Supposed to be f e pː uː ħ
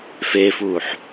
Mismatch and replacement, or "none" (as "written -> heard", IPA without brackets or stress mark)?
pː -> f